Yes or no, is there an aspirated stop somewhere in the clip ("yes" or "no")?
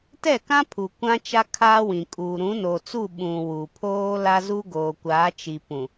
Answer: yes